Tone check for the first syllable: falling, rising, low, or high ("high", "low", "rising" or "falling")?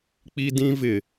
high